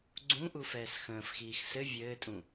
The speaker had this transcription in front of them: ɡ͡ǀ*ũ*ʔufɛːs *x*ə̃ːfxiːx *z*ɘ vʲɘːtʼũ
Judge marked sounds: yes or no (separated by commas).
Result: yes, yes, no